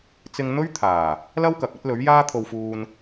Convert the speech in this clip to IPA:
t͡s ɪ˧ ŋ n̪ ɵ˥ ɥ t̪ʰ aː˨˩ | l ɐ˥ w k ɐ˨ k̚ ɐ˥ t̚ l ɵ˨˥ ɥ j aː˥ t̪ʰ o˧ w f uː˧ n

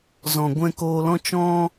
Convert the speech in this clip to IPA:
z ɔ̃˨ ɡʷ ɛ̃˧ k oː˧ l ɔ̃˦ t͡ʃ ɔ̃˧

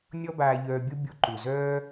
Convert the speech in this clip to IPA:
nʲ ɔ˦ b aː˧ ʎ œː˧ bʲ o˦ bʲ u˧ ǃ u˨ z œː˦

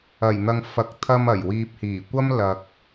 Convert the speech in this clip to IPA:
ɐ˨˩ j n̪ ɐ˨ ŋ f ɐ˨ k̚ t̪ʰ ɐ˧ m ɐ˨˩ j w iː˨ p̚ h iː˨˩ kʷ ɐ˥ m l ɐ˨ k̚

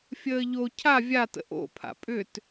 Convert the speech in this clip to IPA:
fʲ əː ʎ o cʰ a vʲ a t ə̰ ʔ o̰ pʰ a̰ pʼ ʏ t

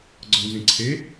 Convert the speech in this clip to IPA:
ɡ͡ǀ ɔ n z ẽ ǀʰ e

